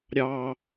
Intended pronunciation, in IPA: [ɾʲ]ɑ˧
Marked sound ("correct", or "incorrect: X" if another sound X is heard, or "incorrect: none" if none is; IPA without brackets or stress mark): correct